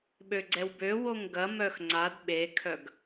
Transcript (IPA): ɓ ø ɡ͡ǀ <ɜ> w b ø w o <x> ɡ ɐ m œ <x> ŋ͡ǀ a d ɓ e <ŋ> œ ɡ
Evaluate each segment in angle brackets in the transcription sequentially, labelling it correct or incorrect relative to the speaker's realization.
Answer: incorrect, incorrect, correct, incorrect

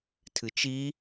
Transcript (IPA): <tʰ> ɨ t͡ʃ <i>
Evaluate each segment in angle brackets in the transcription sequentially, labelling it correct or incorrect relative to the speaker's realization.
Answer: correct, correct

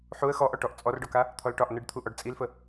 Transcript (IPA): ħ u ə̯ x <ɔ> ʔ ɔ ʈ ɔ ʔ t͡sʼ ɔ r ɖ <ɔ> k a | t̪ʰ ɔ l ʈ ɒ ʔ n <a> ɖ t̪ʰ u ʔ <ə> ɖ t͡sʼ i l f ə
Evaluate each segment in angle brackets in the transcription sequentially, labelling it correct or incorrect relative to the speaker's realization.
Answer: correct, correct, incorrect, incorrect

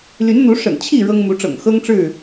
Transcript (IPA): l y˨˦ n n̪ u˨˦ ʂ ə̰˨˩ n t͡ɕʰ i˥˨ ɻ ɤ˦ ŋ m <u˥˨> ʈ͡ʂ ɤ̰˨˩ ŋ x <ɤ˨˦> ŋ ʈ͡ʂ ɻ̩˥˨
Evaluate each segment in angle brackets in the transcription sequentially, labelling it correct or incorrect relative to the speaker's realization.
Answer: incorrect, incorrect

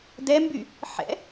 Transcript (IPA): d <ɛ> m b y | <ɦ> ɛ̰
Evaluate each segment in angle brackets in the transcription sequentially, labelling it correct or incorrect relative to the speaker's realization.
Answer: correct, incorrect

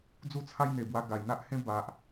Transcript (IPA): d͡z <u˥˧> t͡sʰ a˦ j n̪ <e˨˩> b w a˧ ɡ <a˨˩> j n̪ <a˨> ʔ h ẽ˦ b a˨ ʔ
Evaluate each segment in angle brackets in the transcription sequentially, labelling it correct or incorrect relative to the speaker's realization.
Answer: incorrect, correct, correct, incorrect

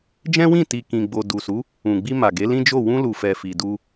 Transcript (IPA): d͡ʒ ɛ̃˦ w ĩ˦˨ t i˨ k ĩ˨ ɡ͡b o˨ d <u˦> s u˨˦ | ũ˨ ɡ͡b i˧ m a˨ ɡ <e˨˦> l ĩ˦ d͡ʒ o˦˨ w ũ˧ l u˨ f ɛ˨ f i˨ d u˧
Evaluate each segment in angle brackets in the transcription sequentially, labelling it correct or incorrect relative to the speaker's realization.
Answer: incorrect, correct

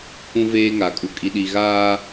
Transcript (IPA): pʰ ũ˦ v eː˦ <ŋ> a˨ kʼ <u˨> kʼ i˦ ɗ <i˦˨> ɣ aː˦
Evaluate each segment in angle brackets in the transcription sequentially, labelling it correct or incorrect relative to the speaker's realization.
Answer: correct, incorrect, incorrect

